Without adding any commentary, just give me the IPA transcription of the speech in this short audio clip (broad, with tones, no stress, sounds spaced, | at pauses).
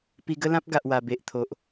p i˧ ɡ ə˦ l ã˦ p̚ ɡ a˨ ʔ w a˨˩ b e˨ ʔ t̪ʰ o˨ ʔ